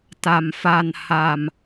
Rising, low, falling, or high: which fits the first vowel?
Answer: low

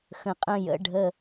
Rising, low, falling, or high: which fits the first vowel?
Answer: low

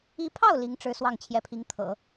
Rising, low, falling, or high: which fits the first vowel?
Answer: rising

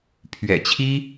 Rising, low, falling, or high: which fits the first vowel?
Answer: low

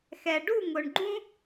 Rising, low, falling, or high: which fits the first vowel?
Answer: low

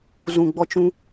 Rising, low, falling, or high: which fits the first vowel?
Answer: low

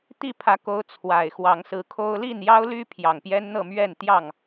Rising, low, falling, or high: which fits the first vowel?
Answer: falling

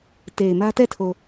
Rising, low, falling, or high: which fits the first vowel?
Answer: low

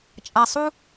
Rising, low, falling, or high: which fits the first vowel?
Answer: low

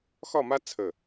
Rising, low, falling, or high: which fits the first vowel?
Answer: falling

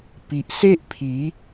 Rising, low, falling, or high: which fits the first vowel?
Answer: low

